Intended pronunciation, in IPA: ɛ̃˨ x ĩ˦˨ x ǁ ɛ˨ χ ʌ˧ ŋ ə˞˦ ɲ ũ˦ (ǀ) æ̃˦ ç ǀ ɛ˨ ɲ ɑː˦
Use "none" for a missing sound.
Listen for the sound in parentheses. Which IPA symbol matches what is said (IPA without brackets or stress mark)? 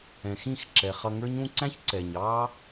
ǀ